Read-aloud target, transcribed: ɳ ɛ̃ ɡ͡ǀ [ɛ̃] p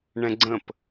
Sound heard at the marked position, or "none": ə̃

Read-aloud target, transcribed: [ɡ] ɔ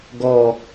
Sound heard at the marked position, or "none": ɡ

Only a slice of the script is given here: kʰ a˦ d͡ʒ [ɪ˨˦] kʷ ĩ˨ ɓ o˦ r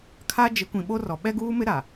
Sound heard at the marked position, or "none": ɪ˨˦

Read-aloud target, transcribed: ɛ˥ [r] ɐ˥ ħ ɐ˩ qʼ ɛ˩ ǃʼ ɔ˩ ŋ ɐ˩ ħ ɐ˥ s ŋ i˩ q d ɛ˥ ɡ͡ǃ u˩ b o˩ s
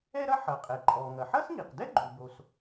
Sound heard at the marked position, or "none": ɾ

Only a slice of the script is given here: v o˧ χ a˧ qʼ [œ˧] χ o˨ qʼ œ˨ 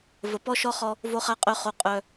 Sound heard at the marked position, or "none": œ˨˦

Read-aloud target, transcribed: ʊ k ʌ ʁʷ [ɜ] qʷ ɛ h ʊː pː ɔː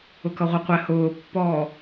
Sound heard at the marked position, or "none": ɜ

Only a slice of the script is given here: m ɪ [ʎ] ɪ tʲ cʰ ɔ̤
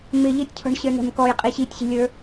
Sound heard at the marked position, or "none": ʎ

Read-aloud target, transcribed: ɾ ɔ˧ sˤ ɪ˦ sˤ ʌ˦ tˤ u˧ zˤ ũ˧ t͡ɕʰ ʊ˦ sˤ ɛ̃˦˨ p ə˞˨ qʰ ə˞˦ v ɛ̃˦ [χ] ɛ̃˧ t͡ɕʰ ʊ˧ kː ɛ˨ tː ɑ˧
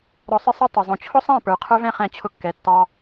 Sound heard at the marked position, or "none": χ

